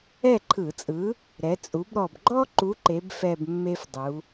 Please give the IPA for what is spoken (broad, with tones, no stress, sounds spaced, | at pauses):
ɛ˥˨ ǃʰ ɯ˧˩˧ t͡sʼ ɯ˨˥ | ɾ ɛ˩˧ t͡sʼ u˩˧ b ɾ ɔ˨˩ b ɡ͡ǃ ɔ˦ ǃ u˨˥ ǃ e˩˧ b f ɛ˨˩ b mː e˦ f dˤ u˩˧